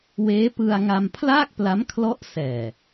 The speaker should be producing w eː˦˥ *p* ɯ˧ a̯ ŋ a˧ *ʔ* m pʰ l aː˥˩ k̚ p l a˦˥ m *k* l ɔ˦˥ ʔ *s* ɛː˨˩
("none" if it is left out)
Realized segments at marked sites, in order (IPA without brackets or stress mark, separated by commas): p, none, kʰ, s